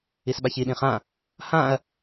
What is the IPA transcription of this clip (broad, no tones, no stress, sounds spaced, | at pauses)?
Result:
i s ɓ a ç i ɗ ĩ χ ã | h ã ɐ̯